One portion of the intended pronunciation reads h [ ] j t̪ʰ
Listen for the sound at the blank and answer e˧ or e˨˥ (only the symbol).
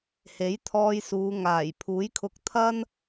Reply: e˨˥